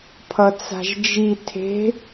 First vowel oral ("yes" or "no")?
yes